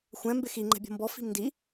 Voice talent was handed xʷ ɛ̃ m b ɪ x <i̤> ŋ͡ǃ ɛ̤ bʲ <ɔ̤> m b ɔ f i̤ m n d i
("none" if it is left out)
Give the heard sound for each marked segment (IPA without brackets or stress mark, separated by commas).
i, ɔ̤